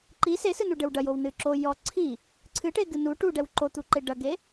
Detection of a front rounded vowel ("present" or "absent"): absent